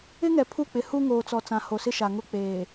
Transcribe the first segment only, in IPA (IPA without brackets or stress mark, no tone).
ɪ